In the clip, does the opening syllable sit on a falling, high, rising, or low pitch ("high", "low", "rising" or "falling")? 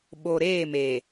low